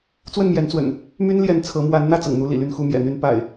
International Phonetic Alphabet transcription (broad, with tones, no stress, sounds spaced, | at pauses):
t͡s w ə˥˨ n m j ɛ˨˦ n t͡s w ə̰˨˩ n | m y˦ n l j ɛ˨˦ n t͡sʰ ɤ˨˦ m w a˨˦ n n̪ ä˥˨ t͡s ɤ̰˨˩ ŋ n̪ u˦ l ḭ˨˩ l y˥˨ n x u˥˨ m j ɛ̰˨˩ n̪ y˦ n p a̰˨˩ ɪ̯